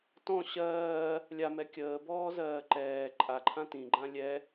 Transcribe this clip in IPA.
tɔ̃ ɕɜː | lʲamɛ kʲəːbɔːzɜː ǃɛː ǃʼaǃʰã tĩɡ͡ǃã lʲɛ

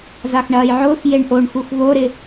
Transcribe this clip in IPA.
zaxɳɐːjʕʊːx jeɳʔoɳxux βoɾɪ

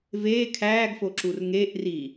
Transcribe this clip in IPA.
veː kʰæːɡfoǁur ŋeːʔri

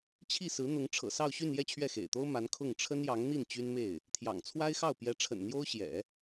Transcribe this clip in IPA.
t͡ɕʰi˥˩sɹ̩˧˥n̪ʊ˧˥ŋ ʈ͡ʂʰɤ̰˨˩sɑ˥˧ʊ̯ɕy˥˧n jɛ˥˧t͡ɕʰɥɛ˥˩xḛ˨˩ɪ̯t̪o˥ʊ̯ ma˧˥nkʰʊ˥˩ŋ ʈ͡ʂʰə˥njɑ˧˥ŋn̪i˥˩n t͡ɕy˥nme˥˩ɪ̯ | t̪ʰjɑ̰˨˩ŋt͡sʰwa˥ɪ̯xɑ˥˩ʊ̯ pjɛ˧˥ʈ͡ʂʰə̰˨˩n n̪jo˥ʊ̯ɕjɛ̰˨˩˦

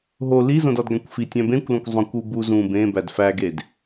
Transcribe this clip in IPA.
ɦo lizõdɒdɡæ̃kʷ fitʲæ̃ bẽkʷlõkʷ zˤõkʷu bu zũ bẽbæd fæɡed

